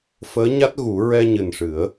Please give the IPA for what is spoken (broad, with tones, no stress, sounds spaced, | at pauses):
f əː˧˥ ɲ a˦˥ t̚ ɣ u˨˩˦ ɹ ɛ˧ ɲ ɨ˨˩ n ʂ ɨ˨˩˦ ə̯